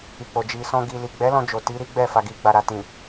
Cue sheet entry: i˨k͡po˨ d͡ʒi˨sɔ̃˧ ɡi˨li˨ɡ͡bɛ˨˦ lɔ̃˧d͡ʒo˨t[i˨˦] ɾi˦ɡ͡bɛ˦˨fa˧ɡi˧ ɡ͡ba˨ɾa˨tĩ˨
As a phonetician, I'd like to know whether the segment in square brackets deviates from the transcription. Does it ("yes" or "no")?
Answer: no